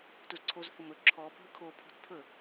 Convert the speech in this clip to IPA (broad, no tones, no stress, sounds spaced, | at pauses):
t u z ǀʰ o z θ ʊ m ɵ ǁʰ ɔ bʱ ɵ kʰ o pʰ o̤ t pʰ ɵ